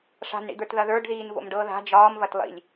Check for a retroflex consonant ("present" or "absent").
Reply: present